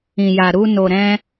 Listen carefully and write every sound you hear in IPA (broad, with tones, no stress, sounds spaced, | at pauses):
ĩ˨ j a˨ ɾ u˧ n o˨ ɾ ɛ̃˧